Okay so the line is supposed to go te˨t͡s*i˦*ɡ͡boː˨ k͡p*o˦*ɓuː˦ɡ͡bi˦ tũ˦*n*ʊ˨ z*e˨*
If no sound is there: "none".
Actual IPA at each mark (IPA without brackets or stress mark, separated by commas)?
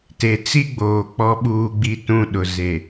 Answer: i˦, ɔ˦, ɗ, e˨